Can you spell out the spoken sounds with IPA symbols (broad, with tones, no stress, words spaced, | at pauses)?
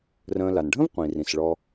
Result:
rə̃ː˨la˩nɖʱə̃˥vqʷĩ˩ rĩ˩sɭɔ˨